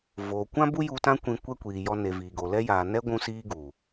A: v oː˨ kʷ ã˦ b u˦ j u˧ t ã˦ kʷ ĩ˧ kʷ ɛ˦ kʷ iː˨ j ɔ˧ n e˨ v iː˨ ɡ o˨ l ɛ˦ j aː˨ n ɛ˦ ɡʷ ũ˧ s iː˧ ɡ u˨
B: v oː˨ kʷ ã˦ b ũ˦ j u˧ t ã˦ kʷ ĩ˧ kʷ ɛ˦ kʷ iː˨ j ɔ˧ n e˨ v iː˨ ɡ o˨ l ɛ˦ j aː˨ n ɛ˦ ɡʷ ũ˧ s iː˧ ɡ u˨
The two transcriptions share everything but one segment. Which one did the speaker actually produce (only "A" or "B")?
A